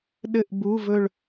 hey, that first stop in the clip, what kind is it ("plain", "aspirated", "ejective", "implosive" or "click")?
implosive